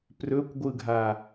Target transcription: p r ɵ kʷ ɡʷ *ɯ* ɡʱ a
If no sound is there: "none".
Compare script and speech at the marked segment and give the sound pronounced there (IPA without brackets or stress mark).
ɯ